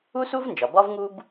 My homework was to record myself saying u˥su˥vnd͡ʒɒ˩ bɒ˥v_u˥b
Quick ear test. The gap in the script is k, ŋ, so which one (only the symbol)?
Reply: ŋ